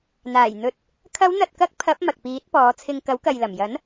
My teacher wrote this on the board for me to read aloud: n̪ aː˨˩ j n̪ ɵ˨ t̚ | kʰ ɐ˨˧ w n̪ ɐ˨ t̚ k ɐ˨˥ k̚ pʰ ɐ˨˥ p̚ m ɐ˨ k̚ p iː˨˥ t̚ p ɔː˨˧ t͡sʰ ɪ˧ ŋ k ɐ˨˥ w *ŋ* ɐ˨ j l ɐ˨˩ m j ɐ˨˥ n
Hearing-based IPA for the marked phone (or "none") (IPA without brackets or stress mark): k